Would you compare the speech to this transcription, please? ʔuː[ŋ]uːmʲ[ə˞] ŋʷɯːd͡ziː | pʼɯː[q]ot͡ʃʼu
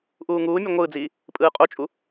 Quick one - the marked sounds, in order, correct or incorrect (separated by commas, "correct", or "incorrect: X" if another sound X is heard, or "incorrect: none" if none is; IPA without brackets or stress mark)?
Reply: correct, incorrect: ʌ, incorrect: qʼ